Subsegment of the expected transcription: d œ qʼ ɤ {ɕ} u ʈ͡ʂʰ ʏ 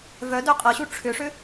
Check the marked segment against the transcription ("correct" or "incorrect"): correct